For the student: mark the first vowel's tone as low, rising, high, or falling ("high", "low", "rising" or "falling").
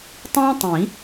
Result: high